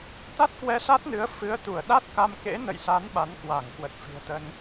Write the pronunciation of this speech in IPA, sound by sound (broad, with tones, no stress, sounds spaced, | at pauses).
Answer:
t̪ a˦˥ t̚ k w ɛ˧ s a˦˥ t̚ n ɨ˨˦ ə̯ f ɨ˨˦ ə̯ t̪ u˧˩ ə̯ ɗ a˦˥ t̚ k a˧ m k ḛ˧˥ n ə̰˧˨ j s a˨˦ n ɓ a˨˦ n k w a˧˩ ŋ k w ə˨˩ t̚ f i̤˨˩ ə̯ t̪ ə˧ n